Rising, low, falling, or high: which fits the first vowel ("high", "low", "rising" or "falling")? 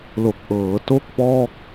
low